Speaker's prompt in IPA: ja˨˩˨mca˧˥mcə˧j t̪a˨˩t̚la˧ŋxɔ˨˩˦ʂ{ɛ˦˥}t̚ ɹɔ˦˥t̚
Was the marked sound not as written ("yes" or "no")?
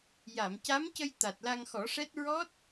no